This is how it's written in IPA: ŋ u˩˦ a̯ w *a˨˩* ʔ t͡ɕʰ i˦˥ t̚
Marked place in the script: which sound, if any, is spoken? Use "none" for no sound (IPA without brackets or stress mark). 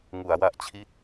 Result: a˨˩